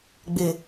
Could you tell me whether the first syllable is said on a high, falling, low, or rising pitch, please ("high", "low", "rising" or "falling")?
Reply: low